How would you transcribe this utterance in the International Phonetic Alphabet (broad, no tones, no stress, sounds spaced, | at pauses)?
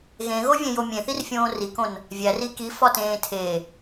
ɣ ẽ ɣ o vʲ ẽ j o mʲ ẽ θ i r fʲ õː r i k õ n | vʲ æ r i k i f ɒ t ẽː tʰ e